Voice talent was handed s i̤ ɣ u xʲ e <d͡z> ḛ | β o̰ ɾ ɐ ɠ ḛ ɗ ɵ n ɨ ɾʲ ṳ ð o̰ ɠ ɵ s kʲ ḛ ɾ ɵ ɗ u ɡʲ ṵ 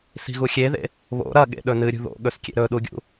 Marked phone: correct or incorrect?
incorrect